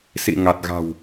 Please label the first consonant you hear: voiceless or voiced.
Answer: voiceless